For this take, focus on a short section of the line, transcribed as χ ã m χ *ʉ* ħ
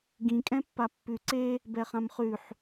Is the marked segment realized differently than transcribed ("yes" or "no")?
no